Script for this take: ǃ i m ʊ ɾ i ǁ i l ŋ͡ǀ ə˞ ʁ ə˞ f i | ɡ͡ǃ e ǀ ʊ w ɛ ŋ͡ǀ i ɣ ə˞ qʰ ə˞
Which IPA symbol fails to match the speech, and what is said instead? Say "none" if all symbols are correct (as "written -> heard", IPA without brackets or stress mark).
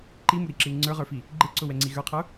none